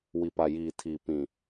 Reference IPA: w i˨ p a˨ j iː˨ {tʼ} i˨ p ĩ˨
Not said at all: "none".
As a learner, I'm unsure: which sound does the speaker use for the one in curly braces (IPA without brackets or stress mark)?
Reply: tʰ